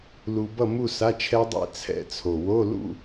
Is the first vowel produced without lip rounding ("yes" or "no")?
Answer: no